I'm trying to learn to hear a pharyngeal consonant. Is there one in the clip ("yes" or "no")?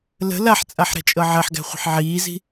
yes